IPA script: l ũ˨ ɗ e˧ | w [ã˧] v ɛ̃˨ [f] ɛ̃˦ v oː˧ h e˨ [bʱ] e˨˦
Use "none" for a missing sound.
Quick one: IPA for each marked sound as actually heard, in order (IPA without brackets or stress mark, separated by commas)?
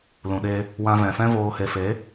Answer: ã˧, f, f